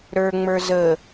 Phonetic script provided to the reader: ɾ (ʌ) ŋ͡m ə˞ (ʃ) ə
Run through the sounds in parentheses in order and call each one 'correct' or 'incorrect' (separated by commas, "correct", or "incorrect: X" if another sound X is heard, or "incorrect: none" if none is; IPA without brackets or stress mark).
incorrect: ə˞, incorrect: z